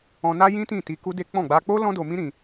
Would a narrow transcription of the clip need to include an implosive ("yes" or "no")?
no